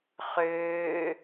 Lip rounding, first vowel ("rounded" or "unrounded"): rounded